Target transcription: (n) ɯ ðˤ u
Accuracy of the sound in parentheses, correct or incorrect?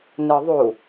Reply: correct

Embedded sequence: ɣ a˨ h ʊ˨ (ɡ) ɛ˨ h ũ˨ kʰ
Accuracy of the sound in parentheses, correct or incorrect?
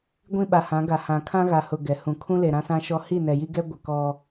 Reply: correct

